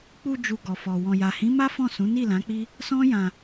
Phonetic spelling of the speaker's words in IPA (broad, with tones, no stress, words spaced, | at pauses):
k͡pu˧ d͡ʒu˨ ɡɔ˨fɔ˨ wɔ̃˨ja˨hĩ˨˦ma˦ fɔ̃˦˨sũ˨˦ ni˦˨lã˨˦k͡pi˦ | sɔ̃˦jã˧